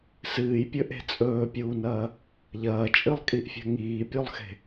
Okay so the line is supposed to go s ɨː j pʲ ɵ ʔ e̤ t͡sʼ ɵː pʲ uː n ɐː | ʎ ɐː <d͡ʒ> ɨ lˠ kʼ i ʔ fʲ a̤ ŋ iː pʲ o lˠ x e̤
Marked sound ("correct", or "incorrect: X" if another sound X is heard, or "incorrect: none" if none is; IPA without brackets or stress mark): incorrect: t͡ʃʼ